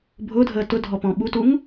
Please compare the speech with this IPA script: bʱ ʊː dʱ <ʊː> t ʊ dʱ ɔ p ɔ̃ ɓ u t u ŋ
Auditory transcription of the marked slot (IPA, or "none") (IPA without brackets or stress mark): əː